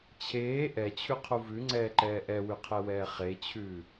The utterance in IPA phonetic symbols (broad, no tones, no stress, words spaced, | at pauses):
t͡ɕʰeː ʔɛt͡ɕʰʉqʰu vʉŋ͡ǀɛːǃɛː ʔɛwʉqʰɛwɛː χet͡ɕʰʉː